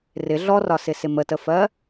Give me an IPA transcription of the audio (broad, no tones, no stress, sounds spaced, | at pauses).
r ɪ ɮ ɔ r ɒ s ɪ s ɪ m ə t ə f ɜ